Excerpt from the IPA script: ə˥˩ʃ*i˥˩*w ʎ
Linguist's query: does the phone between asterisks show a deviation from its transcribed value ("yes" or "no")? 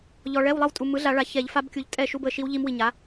yes